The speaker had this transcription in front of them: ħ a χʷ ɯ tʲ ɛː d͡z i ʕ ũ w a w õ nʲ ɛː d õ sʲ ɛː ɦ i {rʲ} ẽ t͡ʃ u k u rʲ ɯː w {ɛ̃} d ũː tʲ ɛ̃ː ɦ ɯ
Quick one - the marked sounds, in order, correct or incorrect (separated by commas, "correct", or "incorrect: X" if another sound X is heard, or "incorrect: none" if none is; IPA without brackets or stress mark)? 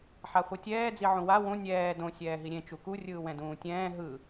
incorrect: ɾʲ, correct